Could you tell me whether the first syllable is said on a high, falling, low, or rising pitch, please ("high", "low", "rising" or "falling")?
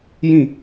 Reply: falling